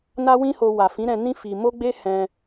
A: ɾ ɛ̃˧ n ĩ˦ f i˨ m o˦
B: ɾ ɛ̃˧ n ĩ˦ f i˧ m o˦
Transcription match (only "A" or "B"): B